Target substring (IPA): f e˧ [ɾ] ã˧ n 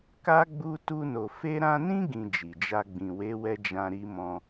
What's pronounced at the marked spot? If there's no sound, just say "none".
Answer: ɾ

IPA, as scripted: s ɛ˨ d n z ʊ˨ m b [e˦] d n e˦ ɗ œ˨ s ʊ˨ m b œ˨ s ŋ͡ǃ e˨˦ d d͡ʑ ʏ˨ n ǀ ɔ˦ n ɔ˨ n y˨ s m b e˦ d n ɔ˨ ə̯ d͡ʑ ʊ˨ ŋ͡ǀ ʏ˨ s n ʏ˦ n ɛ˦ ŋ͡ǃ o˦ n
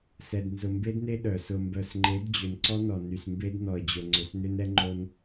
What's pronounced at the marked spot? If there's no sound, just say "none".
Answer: e˦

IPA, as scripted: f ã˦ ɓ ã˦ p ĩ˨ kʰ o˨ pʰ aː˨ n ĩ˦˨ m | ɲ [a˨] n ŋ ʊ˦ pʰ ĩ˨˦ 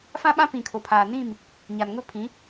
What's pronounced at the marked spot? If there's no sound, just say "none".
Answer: a˨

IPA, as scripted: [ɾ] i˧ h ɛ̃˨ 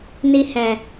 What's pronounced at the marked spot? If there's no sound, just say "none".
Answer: n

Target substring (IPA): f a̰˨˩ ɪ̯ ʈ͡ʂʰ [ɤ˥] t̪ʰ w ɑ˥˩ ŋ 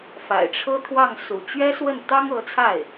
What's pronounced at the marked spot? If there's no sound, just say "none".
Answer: ɤ˥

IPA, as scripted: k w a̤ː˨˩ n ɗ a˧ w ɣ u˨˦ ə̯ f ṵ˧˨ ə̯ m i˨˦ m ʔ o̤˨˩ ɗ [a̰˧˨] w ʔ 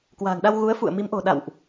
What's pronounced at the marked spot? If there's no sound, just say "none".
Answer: a̰˧˨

